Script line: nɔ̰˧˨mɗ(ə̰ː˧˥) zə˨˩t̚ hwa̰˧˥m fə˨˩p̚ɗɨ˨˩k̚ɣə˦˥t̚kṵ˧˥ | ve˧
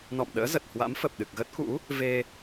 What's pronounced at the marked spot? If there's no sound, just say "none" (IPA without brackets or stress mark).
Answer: ə̰ː˧˥